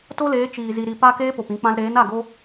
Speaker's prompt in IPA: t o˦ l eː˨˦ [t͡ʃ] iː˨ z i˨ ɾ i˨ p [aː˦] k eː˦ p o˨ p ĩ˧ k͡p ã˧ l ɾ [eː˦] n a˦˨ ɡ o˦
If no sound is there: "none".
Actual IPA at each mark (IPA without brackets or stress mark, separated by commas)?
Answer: t͡ʃ, aː˦, eː˨˦